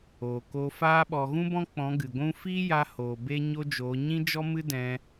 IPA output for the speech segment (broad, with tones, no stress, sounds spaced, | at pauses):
oː˨ k o˧ f aː˦ ɓ ɔ˨ ɣ ũ˦ b ɔ̃˦ k͡p ɔ̃˨˦ ɡ ɨ˨ ɡʷ ũ˦ f iː˦ j a˧ h oː˨ b e˦ ɲ o˦ d͡ʒ oː˨˦ ɲ ĩ˦ d͡ʒ ɔ˦ m ɨ˦ d ɛ̃˧